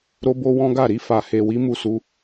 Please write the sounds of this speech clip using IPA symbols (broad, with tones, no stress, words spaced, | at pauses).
ɾo˦bo˦wɔ̃˦ɡa˦˨ ɾi˧fa˨he˨wi˨˦ mu˦˨su˧